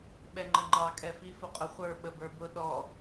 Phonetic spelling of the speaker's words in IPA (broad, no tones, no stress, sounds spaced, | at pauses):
ɓ ɛ ŋ͡ǃ ə ŋ͡ǃ ɑ kʼ ɛ f i f ʊ qʼ ʊ χʷ ə˞ ɓ ə b ə˞ b ʊ ɗ ɔ